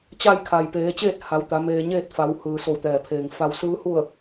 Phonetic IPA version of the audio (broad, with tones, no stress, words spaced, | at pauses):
t͡ɕa˥˨jkʰa˩j peː˩˧t͡ɕeː˥˨t̚ ha˩˧wt̪a˩˧ meː˧ɲeː˥˨t̚ fa˩˧whɯː˩ so˧˩wt̪ɛː˩pʰeː˩ŋ fa˧wsɯː˧˥hu˥˨ə̯